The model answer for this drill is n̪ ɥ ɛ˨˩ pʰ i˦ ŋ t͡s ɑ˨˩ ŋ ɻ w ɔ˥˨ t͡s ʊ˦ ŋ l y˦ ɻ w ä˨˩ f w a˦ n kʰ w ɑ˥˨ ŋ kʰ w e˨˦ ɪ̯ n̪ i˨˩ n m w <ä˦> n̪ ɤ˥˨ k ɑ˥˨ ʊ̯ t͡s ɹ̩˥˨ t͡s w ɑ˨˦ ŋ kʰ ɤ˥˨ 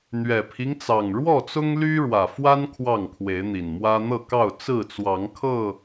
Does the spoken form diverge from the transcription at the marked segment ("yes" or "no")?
no